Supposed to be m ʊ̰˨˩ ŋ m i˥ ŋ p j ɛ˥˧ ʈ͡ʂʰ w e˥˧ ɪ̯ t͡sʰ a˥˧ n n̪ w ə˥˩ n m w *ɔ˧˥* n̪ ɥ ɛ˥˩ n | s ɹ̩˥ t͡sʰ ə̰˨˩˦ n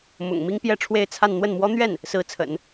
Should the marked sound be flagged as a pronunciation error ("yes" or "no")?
yes